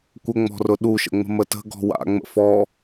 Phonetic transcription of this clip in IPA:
kʷəŋ͡mɔ̤rʊ ɗuʃə̰ŋ͡mə̤ mətə̤ ɡɔ̤wa̰ŋ͡mə̰ fɔ

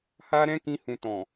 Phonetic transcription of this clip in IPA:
ha˦ɾɛ̃˦kĩ˧ hũ˨tɔ̃˨

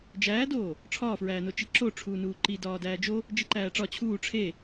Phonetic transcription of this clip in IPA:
d͡ʒæːdoː | ʈ͡ʂʰɒːfɹæːno t͡ʃiǁo ʈ͡ʂʰuːnuːǃi dɒːdæːd͡ʒo | d͡ʒiǃæːʈ͡ʂɒ t͡ɕʰuː ʈ͡ʂʰe

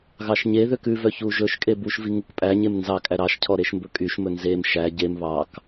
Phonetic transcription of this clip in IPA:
ɣɑʃɲeðøk ʉvœ çuʒɵʃkʼe buʃvi ŋukpʼæɲem nzɑkʼæ ɾɑʃcʰɔ ɾeʃmbɵkʼyʃmɵ nzem ʃæ ɟem βɑk

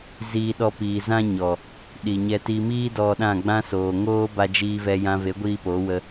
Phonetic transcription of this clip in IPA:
ziː˧ɗɔ˧ piː˨zã˦ɲɔ˨ | ɗi˨ɲɛ˧ ti˧miː˦ dɔ˧ɗã˦˨ɡ͡bã˦soː˨ ŋoː˦ba˧d͡ʒiː˧vɛ˧ jã˧ve˨˦ɡʷiː˧ po˨˦wə˧

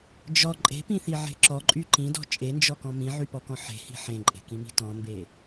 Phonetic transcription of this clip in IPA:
d͡ʒɔ ǃʼe̤pĩθiʕe̤ ǁɔǃʼy ǃĩdɔ̤ t͡ʃʼend͡ʒɔkɔ̃ mĩʕypɔkɔ̃ ħe̤hi̤ ħẽǃʼe̤kĩmi̤ tɔ̃mbe

